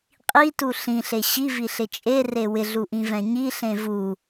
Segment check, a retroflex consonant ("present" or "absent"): absent